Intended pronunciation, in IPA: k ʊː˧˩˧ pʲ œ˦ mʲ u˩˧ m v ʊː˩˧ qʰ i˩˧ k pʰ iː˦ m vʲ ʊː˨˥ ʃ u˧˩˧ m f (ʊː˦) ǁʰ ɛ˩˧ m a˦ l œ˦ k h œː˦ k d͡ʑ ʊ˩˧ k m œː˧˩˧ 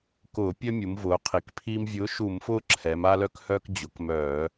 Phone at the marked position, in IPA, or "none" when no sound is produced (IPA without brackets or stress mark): ʊː˦